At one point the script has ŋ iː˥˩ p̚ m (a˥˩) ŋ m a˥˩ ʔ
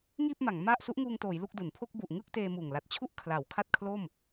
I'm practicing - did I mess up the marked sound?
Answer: yes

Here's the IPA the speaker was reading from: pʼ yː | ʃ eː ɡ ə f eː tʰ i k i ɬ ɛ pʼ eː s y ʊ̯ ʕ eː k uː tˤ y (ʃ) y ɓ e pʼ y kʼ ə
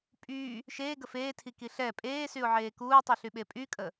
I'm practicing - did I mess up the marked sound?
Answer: yes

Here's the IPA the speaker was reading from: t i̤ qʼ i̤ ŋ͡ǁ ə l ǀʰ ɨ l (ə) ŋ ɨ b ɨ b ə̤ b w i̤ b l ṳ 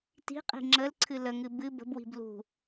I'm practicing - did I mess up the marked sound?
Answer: no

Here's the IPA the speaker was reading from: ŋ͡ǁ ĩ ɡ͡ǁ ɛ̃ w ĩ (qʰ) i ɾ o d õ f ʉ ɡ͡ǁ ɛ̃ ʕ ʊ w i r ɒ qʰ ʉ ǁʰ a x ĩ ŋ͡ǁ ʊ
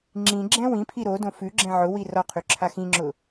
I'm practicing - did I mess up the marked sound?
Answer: yes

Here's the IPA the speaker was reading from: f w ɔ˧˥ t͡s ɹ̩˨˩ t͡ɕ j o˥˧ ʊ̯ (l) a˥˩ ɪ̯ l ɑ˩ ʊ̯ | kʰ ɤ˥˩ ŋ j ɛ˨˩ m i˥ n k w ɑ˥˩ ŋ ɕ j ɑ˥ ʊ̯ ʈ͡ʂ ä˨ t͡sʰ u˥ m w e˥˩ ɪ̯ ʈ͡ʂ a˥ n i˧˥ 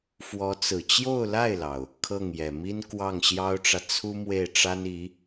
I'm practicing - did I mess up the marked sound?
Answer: no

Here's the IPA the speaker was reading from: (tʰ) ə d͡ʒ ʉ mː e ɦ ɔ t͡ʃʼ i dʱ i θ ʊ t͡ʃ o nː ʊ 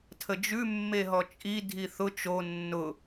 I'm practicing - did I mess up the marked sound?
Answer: no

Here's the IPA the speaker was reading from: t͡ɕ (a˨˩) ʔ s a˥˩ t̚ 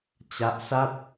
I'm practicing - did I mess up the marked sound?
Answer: yes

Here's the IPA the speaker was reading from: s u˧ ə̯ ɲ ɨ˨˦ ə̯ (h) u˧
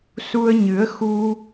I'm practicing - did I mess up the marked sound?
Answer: yes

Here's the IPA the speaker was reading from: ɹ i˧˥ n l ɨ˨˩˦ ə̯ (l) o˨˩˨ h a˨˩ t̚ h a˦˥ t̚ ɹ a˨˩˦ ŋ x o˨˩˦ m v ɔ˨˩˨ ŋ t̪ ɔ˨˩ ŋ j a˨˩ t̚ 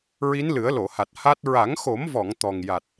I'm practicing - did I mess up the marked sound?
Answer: no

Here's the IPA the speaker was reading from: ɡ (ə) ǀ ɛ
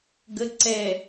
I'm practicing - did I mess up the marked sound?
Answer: no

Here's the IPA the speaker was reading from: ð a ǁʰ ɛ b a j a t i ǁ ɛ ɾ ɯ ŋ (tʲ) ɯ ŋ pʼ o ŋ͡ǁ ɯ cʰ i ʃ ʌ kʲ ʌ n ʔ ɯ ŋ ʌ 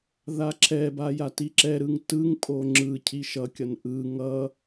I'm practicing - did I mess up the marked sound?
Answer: yes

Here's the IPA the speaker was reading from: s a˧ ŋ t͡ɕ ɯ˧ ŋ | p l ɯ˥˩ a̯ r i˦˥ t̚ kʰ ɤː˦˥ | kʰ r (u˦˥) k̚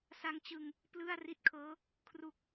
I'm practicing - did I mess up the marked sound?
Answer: no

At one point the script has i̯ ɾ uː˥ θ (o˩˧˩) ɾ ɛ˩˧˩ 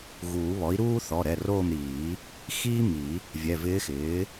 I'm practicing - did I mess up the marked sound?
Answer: yes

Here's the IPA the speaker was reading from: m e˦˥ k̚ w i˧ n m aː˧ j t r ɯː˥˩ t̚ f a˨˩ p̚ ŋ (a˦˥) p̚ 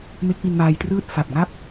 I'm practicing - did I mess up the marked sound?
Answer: yes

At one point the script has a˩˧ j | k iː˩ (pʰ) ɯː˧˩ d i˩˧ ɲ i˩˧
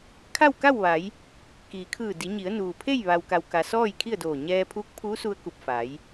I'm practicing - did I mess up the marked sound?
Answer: yes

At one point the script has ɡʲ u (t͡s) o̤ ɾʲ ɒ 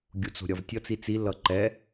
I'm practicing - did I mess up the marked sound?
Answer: no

